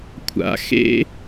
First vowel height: low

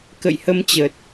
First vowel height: mid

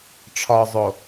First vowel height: low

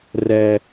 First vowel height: mid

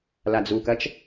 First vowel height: low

